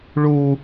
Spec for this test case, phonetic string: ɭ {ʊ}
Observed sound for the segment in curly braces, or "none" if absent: u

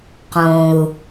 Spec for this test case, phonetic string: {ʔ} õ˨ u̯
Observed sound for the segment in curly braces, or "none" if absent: q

